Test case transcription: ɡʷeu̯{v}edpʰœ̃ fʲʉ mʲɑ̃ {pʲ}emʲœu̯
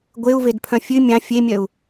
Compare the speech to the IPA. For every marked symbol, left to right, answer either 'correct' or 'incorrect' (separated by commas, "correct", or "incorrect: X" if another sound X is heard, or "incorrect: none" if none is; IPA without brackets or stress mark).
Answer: correct, incorrect: fʲ